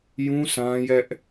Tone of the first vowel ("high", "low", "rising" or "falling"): high